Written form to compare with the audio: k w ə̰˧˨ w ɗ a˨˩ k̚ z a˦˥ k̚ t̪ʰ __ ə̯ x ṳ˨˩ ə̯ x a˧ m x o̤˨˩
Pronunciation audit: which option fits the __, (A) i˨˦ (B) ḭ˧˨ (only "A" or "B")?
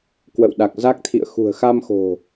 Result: B